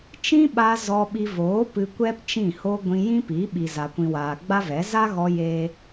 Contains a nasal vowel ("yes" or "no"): yes